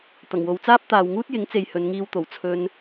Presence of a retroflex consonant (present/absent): absent